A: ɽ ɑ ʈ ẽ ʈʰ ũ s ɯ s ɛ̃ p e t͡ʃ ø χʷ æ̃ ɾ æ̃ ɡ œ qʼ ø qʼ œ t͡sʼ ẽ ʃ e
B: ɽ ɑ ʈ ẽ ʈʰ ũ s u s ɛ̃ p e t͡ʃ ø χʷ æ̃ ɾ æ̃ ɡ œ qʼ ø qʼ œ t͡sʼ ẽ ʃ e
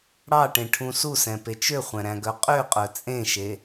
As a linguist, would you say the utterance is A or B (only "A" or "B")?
B